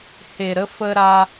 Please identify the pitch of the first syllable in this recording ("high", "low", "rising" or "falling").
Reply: low